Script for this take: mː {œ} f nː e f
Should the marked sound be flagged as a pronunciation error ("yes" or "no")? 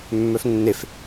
no